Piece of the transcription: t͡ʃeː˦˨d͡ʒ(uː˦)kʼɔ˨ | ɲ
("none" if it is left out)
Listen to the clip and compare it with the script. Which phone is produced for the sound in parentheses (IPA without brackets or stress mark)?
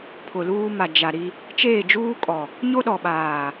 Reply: uː˦